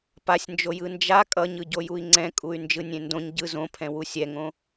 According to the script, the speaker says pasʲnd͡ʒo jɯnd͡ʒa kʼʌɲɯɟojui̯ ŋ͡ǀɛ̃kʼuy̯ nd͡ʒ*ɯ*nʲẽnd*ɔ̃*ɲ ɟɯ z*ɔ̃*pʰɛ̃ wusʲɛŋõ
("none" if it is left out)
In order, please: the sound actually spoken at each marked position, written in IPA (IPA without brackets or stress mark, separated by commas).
ɯ, õ, õ